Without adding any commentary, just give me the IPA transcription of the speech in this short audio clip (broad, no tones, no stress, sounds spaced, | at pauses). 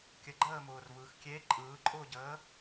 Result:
kʲ ə ɡ͡ǃ əː m ʊː r v ɯː x kʲ e ǃʼ ɯː ǃʼ ʊː ɟ əː